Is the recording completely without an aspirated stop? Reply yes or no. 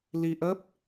yes